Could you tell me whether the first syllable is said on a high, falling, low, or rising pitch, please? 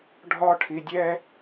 high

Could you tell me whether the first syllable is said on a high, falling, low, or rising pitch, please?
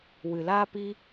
low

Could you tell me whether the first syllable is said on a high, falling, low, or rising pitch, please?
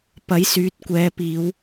rising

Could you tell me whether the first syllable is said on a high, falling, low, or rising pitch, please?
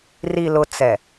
low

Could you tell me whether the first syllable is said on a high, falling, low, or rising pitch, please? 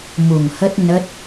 low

